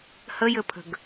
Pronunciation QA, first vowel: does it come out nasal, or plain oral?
oral